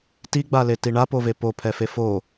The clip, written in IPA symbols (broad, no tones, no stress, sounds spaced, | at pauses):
t i ɡ͡b a l e t i ɳ a p o v e p o pʰ ɛ f e f o